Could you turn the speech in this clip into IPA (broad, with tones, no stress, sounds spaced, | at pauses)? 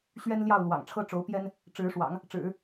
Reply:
ɕ ɥ ɛ˥ n l j ɑ˥˩ ʊ̯ l w ɑ̰˨˩ ŋ ʈ͡ʂʰ ɤ˥ ʈ͡ʂ o˧˥ ʊ̯ p j ɛ˥ n | ʈ͡ʂ ɻ̩˧˥ ʂ w ɑ̰˨˩˦ ŋ | ʈ͡ʂ ɻ̩˨˩˦